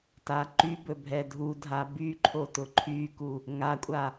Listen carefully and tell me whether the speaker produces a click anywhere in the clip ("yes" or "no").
yes